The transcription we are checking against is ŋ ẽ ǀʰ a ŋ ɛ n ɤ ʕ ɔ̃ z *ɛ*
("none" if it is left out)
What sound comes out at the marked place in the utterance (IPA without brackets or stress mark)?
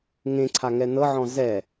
ɛ